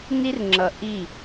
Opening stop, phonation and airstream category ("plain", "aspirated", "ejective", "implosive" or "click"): click